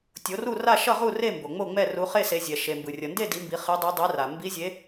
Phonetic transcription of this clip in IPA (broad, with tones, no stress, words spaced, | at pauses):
tʲo˨˦ru˥˨ra˥˨ ʃʌ˥˨ʁu˥˨re˥˨ mbo˩ ŋ͡mo˥˨ŋ͡mɛ˥˨ ru˨˦χe˥˨se˨˦zʲɛ˩ ʃe˩mbɯ˩rʲʌ˩nde˥˨ di˨˦mbi˨˦ χe˨˦dˤe˨˦ dˤɛ˨˦ra˩ mbi˨˦zʲe˨˦